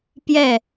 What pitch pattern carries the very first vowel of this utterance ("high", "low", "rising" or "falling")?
falling